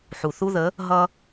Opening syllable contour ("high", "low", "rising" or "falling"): low